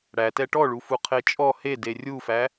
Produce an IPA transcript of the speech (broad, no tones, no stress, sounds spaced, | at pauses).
ɽ æ t ɛ ʈ ɔ ɭ u f u qʰ e t͡ʃʼ ɔ h e d e rʲ u f æ